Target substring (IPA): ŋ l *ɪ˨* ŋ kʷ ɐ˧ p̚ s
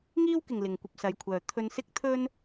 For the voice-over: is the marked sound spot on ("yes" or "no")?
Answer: yes